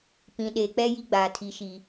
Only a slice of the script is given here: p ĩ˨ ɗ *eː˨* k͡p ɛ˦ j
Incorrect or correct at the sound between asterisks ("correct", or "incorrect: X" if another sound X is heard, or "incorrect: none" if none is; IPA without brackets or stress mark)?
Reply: correct